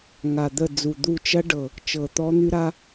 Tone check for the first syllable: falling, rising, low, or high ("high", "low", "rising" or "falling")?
low